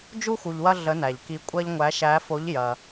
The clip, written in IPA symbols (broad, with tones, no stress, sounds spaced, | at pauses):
d͡ʒ u˧ x u˩ ʎ w ɐ˧ ɮ ə˩˧ n æ˩ ʎ k i˩˧ kʷʼ ɐ˧ ʎ ŋʷ æ˩˧ ʃ æ˩˧ f o˩˧ ʎ j ɐ˩